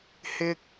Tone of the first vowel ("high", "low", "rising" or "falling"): high